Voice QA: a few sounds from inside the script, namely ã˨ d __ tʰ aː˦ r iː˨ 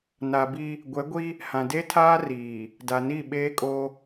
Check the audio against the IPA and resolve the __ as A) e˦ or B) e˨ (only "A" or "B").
A